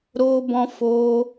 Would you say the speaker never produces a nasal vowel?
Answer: no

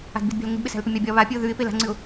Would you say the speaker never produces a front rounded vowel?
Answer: yes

